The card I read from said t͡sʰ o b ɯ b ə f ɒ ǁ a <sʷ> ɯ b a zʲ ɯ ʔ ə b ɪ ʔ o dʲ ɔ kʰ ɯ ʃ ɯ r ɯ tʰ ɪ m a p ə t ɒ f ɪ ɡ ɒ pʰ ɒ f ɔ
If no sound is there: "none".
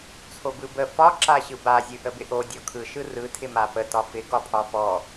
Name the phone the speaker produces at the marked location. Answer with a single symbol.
ɕ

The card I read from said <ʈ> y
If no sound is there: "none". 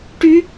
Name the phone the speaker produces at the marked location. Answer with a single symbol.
ʈ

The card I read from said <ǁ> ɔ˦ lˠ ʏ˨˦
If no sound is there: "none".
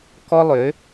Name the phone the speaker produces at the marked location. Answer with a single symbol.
k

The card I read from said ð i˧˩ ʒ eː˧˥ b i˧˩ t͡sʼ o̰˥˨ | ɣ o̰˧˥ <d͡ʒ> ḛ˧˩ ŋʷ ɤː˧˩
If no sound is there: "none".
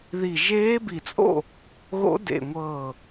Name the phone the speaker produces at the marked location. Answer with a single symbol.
d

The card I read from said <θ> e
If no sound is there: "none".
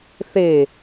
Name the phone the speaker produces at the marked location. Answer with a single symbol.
θ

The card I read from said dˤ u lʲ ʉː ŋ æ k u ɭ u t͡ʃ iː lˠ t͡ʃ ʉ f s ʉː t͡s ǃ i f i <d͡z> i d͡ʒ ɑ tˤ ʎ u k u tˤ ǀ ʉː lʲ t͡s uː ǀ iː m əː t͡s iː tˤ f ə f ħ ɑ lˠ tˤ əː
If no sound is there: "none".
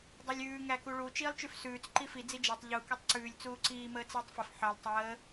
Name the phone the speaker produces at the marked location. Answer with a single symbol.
d͡z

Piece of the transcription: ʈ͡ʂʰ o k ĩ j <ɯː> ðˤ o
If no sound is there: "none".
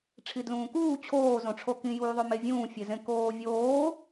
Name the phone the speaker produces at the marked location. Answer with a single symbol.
uː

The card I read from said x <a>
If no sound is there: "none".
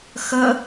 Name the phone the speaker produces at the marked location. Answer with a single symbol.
ə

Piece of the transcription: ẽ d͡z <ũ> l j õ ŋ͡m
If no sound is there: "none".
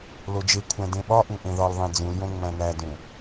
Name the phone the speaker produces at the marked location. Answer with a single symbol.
ũ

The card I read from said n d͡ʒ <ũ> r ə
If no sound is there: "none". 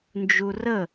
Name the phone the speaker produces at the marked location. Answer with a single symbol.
u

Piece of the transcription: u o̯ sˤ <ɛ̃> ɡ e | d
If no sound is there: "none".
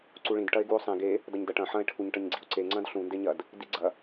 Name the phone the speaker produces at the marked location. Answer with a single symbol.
ẽ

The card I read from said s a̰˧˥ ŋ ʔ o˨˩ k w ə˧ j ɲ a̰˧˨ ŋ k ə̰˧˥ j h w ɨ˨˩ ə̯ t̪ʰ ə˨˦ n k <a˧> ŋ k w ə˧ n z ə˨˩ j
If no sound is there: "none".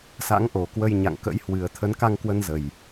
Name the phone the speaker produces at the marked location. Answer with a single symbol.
a˧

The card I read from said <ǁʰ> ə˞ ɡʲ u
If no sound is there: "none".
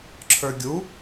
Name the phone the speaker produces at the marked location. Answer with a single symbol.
ǁʰ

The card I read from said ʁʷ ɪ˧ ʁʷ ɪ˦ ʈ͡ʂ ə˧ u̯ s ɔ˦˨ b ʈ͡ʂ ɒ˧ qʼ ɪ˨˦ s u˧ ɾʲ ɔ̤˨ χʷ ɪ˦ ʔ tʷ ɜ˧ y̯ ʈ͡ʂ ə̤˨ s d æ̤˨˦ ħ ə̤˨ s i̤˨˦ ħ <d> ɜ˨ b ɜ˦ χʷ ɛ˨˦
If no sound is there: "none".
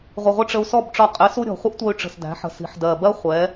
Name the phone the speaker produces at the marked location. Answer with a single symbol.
d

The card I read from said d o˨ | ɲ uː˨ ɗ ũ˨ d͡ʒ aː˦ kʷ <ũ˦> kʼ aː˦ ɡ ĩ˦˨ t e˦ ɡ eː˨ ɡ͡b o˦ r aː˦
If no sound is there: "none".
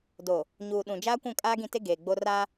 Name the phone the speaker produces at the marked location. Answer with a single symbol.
ũ˦˨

